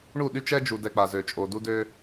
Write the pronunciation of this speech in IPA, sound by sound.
ɳ u˦˨ ɗ y˦ t͡ʃ ɛ˦ d͡ʒ u˨ d ɛ˨ k͡p a˨ z ø˨ t͡ʃʼ o˨ d u˦ d ø˦

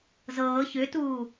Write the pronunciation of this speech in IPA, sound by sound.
z ɤː ç ʏ t uː

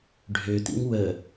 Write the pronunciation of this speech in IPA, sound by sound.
ɖʱ ø t ḭ ŋ w ə

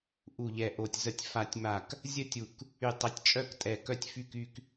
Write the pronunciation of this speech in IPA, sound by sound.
ʔ u˧˩ ʎ ɛ˧˩ ʔ o˧˩ tʲ z ə˧˩ tʲ f a˧˩ tʲ m a˧˩ k | zʲ ə˥˧ tʲ u˧˩ k | y˧˩ tˤ ə˧˩ tʲ t͡ʃʼ œ˥˧ k tʼ ɛ˧˩ k œ˥˧ tʲ f y˥˧ k y˥˧ k

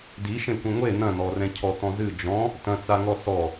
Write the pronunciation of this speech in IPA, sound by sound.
d i ʃ ẽ kʷ ẽ ŋʷ e n̪ ɐ̃ n̪ ɔ r ɛ̃ cʰ ɔ t̪ ɔ̃ z ɨ d͡ʒ ɔ̃ | t ɐ̃ t͡s a ŋ ɔ s ɔ

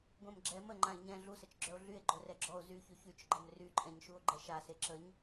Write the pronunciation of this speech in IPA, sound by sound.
ɡʷ ɛ̃ m ɡ͡ǁ ɛ m ə ŋ͡ǃ ã e̯ ɲ ɛ̃ ɮ u s ə t͡ʃ ɡ͡ǁ œ o̯ ɮ y e̯ ɡ͡ǃ œ r ɛ ɡ͡ǁ ɔ o̯ z y ç y ç y t͡ʃ ɡ͡ǃ ə m r y ǃʼ ɛ̃ ɲ ʃ u o̯ ɡ͡ǃ ɛ ʃ a s e ǁ ə ɲ

